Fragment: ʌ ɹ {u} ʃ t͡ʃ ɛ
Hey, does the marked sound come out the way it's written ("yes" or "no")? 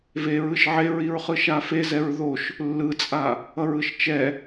no